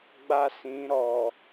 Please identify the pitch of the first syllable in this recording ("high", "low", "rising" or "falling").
high